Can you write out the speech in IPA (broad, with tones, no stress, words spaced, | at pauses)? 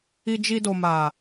i˧d͡ʒi˧do˨ma˨